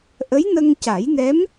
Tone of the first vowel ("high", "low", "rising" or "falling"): rising